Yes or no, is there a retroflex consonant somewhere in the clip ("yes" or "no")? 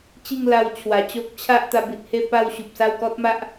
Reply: no